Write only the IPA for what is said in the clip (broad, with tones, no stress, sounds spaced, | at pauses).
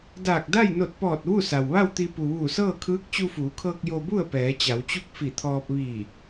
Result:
d aː˧˩ k̚ d a˥˨ j n o˧˩ t̚ p ɔː˧˩ t̚ ʋ u˥˨ s a˩ w ʋ a˥˨ w t̪ i˧ p u˩ ʋ uː˧˩ s ɤː˥˨ kʰ ɯː˧˥ k̚ t͡ɕ u˧ f uː˩˧ kʰ ɤː˧ k̚ j o˧ b u˥˨ ə̯ p ɛː˩˧ t͡ɕ a˩˧ w t͡ɕ u˥˨ k̚ f i˧˩ t̪ʰ ɔː˧ p̚ ʋ iː˧˩